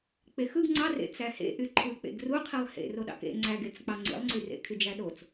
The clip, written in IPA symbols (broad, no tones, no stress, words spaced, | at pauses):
k͡pexɯɡ ŋ͡ǀɑrḛ t͡sæhḛʔy ǃʰɯk͡pḛɡ ruqʰilˠ hḛ roɗɑ̰kḛ ŋ͡ǀæɡet͡sk͡pɑ ŋ͡ǀḭlˠŋ͡ǀyrḛ kʰyd͡ʒæɗot͡s